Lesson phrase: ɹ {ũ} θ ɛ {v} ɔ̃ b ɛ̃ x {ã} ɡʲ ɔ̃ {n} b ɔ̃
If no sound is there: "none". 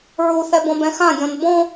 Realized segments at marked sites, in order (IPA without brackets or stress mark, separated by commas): u, b, ã, n